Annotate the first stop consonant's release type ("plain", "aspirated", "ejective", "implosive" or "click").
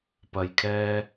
plain